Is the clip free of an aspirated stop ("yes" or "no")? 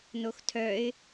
no